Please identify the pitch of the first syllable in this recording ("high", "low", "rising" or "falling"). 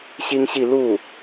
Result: high